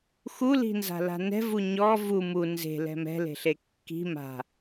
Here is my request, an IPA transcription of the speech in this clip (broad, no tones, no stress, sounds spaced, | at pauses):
x u l i̤ n z a̤ l a̤ n ɛ̤ v u ɲ ɔ v u m u n z e̤ l ɛ̤ m ɛ̤ l e̤ ɬ e kː i̤ m a̤